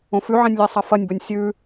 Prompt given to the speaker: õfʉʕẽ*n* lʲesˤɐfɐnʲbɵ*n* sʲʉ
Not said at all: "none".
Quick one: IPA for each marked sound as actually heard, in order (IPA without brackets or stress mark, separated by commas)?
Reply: nʲ, nʲ